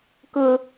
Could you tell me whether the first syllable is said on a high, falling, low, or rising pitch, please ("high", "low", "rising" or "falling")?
high